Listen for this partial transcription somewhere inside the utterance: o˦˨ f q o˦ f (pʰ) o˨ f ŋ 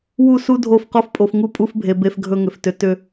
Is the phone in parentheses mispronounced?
yes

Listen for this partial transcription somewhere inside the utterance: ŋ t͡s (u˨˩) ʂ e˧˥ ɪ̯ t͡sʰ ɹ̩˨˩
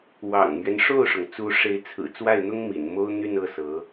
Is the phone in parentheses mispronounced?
yes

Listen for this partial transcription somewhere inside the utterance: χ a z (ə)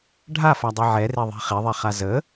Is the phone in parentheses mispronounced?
no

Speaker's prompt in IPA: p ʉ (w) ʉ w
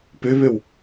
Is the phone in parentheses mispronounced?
yes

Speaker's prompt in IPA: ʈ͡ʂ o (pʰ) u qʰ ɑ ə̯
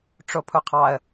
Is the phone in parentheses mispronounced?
no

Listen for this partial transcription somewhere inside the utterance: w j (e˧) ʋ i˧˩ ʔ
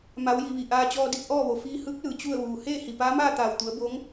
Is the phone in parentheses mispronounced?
yes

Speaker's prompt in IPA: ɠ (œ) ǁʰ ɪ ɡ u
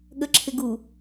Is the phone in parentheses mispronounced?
yes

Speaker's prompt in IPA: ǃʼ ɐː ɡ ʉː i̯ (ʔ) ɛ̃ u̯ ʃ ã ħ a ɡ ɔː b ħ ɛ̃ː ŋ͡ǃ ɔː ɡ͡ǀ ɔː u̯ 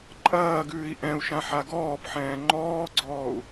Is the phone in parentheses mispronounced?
no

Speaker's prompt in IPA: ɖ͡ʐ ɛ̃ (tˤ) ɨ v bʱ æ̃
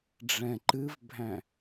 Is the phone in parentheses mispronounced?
yes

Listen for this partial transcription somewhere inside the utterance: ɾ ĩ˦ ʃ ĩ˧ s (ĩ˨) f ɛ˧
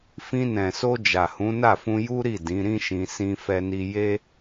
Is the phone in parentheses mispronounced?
yes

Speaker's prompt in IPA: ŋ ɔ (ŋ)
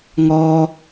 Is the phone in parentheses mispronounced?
yes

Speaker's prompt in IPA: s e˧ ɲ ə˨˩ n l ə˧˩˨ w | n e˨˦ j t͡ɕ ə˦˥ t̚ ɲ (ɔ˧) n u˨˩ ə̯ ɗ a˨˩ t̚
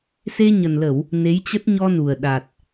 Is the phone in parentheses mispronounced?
no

